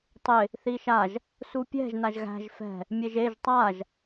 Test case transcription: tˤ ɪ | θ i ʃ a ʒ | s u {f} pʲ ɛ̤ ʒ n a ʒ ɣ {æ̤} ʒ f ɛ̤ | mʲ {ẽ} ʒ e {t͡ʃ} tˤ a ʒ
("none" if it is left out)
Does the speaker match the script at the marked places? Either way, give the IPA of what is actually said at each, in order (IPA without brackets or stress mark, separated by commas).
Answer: none, æ̤, e, ʒ